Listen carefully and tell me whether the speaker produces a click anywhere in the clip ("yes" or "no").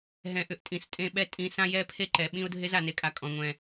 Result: yes